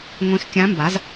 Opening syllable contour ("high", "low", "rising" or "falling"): rising